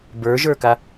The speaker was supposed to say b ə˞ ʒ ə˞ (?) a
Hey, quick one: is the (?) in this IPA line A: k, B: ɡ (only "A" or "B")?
A